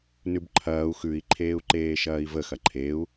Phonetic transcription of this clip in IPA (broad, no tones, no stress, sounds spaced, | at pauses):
n ʉ b ǃʰ ɐː u̯ x ʉ i̯ ǃʰ eː u̯ ǃ eː ʃ ɐː i̯ v ə x ɐ ǃʰ e u̯